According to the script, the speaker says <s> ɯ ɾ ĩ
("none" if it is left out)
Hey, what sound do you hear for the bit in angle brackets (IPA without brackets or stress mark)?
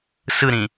s